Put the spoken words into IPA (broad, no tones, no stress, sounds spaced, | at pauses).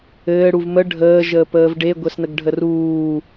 ɘː ɽ u v m ə ɖʱ əː ʒ əː p əː v ɖ e ɡʷ ɛ s n ə ɡ ɖʱ ə r uː